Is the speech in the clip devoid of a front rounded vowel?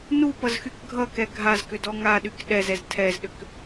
no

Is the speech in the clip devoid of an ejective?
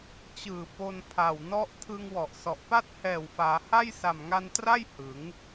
yes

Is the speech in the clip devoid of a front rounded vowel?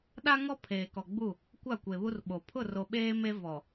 yes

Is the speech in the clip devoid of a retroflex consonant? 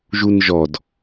yes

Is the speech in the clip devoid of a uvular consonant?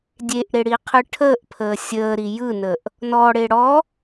no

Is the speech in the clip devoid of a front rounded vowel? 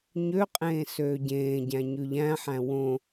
no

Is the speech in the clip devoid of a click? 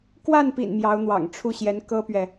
yes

